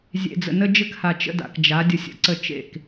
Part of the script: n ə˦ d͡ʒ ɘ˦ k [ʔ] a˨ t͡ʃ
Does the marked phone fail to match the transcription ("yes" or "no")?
yes